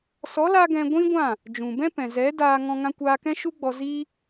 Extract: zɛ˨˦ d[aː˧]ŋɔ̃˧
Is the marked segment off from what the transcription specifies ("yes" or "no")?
no